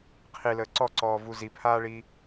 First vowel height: high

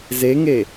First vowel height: mid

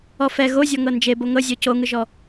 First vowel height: mid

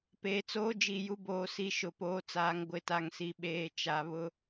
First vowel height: mid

